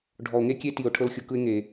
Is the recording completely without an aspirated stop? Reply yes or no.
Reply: no